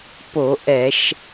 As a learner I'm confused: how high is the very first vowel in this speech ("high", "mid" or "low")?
mid